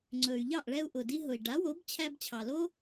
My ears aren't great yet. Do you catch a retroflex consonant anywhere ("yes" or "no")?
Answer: yes